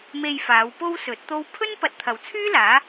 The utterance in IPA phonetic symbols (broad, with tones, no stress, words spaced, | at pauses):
me˧jfaː˨˧w po˥wsɵ˨˥t̚t̪o˥w pʰɵ˥npɐ˨t̚t̪ʰɐ˨˩wt͡sʰyː˥ laː˨˥